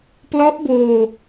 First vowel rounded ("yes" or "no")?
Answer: yes